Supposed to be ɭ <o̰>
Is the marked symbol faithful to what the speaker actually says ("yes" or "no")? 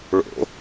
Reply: yes